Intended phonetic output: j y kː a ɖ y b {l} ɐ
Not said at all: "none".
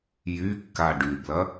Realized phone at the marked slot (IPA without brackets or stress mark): l